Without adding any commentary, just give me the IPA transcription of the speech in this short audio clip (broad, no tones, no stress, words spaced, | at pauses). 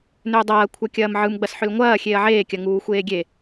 nʏːdˤɐː kʷʰɐkʲɐːmʕɯm ɡ͡bɐsħʏlŋʷɐː xʲeːɐ̯ʕeːkʲɐ ŋuːxʷeːɡʲe